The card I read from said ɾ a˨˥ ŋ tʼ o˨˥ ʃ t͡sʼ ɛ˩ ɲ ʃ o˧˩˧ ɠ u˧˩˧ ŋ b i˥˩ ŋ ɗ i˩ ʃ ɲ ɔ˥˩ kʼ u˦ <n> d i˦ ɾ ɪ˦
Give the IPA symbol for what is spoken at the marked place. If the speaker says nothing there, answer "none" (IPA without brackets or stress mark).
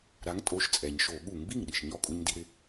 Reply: ɲ